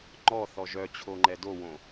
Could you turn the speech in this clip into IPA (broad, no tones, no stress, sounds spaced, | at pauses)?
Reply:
ŋ͡ǃ ɔ θ ɔ ʒ œ t͡ɕʰ o ŋ͡ǃ ɛ d o w õ